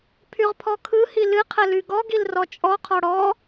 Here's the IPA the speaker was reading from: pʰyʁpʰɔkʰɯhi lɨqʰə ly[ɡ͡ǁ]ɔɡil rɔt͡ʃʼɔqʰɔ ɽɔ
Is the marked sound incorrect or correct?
incorrect: ɡ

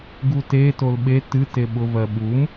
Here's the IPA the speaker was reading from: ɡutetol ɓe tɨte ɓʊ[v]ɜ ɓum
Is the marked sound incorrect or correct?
correct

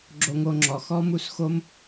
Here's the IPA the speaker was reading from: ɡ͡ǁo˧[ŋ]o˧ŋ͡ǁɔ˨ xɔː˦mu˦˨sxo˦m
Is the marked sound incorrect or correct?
correct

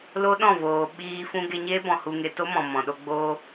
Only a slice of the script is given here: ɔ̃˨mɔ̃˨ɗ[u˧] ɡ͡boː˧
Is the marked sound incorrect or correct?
incorrect: o˧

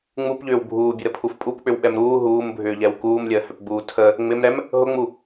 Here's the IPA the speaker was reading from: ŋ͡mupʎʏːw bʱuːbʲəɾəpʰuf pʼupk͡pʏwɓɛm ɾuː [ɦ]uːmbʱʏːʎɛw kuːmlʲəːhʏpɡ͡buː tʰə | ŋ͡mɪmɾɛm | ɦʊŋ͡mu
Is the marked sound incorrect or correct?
correct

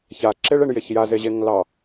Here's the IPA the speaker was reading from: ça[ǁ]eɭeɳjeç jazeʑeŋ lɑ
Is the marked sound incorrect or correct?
correct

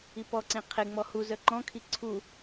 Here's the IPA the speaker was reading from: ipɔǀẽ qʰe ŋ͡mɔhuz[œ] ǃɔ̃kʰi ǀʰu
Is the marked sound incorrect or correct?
correct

